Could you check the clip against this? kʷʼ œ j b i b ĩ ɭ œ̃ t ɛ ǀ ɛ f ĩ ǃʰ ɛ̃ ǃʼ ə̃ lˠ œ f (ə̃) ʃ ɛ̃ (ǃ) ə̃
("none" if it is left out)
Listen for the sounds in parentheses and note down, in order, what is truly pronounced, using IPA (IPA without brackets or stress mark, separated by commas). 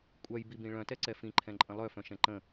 œ̃, ǃ